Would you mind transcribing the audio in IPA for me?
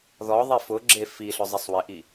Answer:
ð ɔ ðˤ i f ʊ ɡ͡ǁ e f i ɬ ʊ zˤ ɪ sˤ w ɪ ʔ i

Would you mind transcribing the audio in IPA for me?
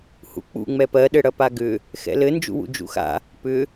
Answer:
h ṵ k͡p ṵ ŋ͡m ɛ p ɜ ɗ ɘ ɽ ɐ p a ɡ ʏ | x ɛ̰ l ɘ n d͡ʒ ṵ w ṵ d͡ʒ ṵ x a̰ | p ʏ

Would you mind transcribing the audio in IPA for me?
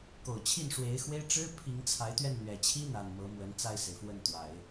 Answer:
k o˨˩ ʊ̯ t͡ɕʰ i˥˩ n ʂ w e˧˥ ɪ̯ x w e˥ ɪ̯ ʈ͡ʂ ɻ̩˥ pʰ i˧˥ ŋ t͡sʰ a˧˥ ɪ̯ t̪ ɥ ɛ˥˩ n n̪ ɥ ɛ˨˩ t͡ɕʰ i˥ n̪ a˨˩ n m ɤ˧˥ m w ə˧˥ n t͡s a˥˩ ɪ̯ s e˩ ɪ̯ f w ə˥˩ n t̪ w a˨˩˦ ɪ̯

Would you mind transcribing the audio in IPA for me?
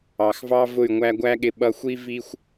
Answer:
ɑ˨ x v ɑ˦ v ʊ˦˨ y̯ ŋʷ æ˧ ɡʷ æ˦ ɠ ɪ˧ ɓ ʌ˧ xʷ i˦ v i˦ xʷ

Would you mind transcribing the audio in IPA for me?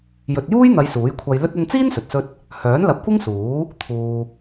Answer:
j ɵ˨ t̚ j uː˥ j n̪ ɐ˨˧ j s uː˨˥ j kʷʰ ɐ˧ j l ɵ˥ t̚ ɐ˧ n t͡s iː˥ n s ɵ˨ t̚ s ɵ˥ t̚ | h œː˨˥ n l ɐ˨˥ p̚ kʷ ɪ˥ ŋ s uː˨˥ | t̪ʰ uː˨

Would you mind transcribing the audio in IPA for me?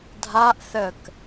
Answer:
dʱ a ʔ θ ə k

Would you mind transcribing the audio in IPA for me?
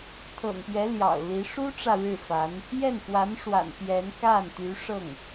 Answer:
t̪ʰ ɤ̰˨˩ ŋ p ɥ ɛ˧˥ l j ɑ̰˨˩ ʊ̯ l i˧˥ ʂ u˥ ʈ͡ʂ ä˨ ɻ ɻ̩˥˩ f a˧˥ n | j ɛ˥˩ n f w a˧˥ n ʂ w a̰˨˩ n p j ɛ˧˥ n k a˥˩ n t̪ y˧˥ ʂ ɤ˥˩ ŋ

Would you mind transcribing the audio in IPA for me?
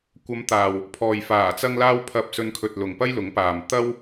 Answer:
kʷ ɐ˨˧ m t̪ aː˨ w | pʰ ɔː˨ j f aː˨˩ t͡s ɐ˧ ŋ l aː˧ w pʰ ɐ˨ p̚ s ɵ˧ n kʰ ɵ˨ t̚ l ʊ˨ ŋ p ɐ˥ j l ʊ˨˥ ŋ p aː˨ m t̪ ɐ˥ w

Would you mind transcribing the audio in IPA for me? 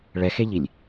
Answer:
ɭ ɛ x e ʎ i lʲ

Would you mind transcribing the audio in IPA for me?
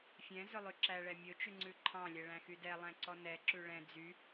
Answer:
fʲ ɛ̃ z ɵ lˠ ʉ ǁ æ ɭ ɛ mʲ ɵ t͡ʃ ʉ ŋ͡ǀ ʉ ǃʰ ɑ̃ lʲ ɛ ɭ æ̃ x y d ɛ lˠ æ̃ ǀ ɔ n ɛ ǁ ʉ ɭ ɛ̃ d͡z y

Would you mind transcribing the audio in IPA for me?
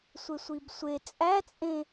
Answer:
sʷ e sʷ i b sʷ e t͡sʼ æ t͡sʼ ẽ

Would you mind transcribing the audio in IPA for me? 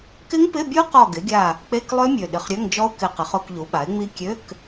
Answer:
k ɪ˦˥ ŋ p ɪ˧˥˧ bʲ u˦˥ q ɔ˦˨ ɡ ɪ˩˥ ɡʲ a˦˨ | k͡p e˧˥˧ k lˠ ø˦˥ mʲ ø˨˩ ɗ ɪ˨˩ χ ɾʲ ø˧˥˧ ŋ d͡ʒ ɔ˦˥ ʊ̯ k ɪ˨˩ q ɪ˩˥ χ ʊ˧˥˧ k ʎ u˩˥ ɓ a˩˥ ɪ̯ ŋ͡m i˦˥ kʲ ø˧˥˧ k

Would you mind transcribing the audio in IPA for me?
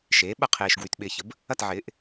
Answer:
ʃ eː˩˥ ɓ ɐ˦ qʰ eː˨ ʃ ɡ w y˨ t ɓ ɪː˨ ç ə˩˥ b | ɐ˥˨ t ʕ ɪː˩˥ ʔ

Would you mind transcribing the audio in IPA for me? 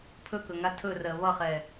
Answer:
pʰ ɵ k ɵ ŋ a tʰ ɵ r ɜ β ʌ χ ɛ

